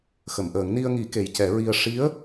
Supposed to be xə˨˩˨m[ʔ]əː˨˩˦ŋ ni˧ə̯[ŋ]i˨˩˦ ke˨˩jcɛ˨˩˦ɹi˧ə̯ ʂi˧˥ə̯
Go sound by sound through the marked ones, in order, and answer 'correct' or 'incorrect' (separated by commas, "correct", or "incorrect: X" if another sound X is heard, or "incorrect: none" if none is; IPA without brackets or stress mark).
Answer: correct, correct